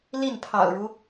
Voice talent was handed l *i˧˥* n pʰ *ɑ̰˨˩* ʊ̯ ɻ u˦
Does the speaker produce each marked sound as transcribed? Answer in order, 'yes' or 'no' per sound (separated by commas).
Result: no, yes